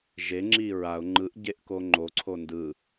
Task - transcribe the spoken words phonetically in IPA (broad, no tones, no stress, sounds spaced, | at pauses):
ʒ e ŋ͡ǁ i ɹ a ʊ̯ ŋ͡ǃ ɯ ʔ ɟ e ʔ k o ŋ͡ǃ o ǀʰ o n d ɯ